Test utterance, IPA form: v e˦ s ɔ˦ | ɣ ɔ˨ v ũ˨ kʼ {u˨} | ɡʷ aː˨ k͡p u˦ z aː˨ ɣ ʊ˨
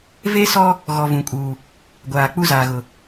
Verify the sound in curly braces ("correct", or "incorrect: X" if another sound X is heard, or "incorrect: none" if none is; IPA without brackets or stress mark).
incorrect: uː˨